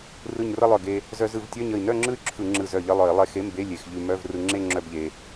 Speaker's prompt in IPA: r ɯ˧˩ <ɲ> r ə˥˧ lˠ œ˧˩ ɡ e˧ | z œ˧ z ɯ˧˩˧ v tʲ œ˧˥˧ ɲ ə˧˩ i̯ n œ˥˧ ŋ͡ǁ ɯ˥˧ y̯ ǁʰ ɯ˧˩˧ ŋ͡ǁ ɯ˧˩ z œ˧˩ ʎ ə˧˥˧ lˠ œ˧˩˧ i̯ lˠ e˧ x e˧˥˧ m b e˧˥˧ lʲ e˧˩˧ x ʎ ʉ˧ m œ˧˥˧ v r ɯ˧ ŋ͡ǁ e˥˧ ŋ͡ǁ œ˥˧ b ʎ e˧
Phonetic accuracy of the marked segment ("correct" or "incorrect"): correct